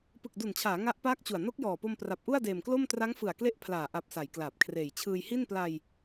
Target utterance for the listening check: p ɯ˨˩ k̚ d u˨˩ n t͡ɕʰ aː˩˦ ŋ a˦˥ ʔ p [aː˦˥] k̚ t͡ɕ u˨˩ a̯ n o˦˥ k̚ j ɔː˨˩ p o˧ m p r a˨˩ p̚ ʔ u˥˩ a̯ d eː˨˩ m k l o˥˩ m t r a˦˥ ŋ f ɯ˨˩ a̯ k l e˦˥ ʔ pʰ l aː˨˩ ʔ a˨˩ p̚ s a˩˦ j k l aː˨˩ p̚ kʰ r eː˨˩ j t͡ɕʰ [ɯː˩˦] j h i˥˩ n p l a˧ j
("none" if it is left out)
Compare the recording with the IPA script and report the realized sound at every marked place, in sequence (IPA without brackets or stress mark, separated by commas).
aː˦˥, ɯː˧